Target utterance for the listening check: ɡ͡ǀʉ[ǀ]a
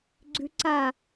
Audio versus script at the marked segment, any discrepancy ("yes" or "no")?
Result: no